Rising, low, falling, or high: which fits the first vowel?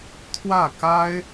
falling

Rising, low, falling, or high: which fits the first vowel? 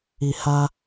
low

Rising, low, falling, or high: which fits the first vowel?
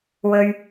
high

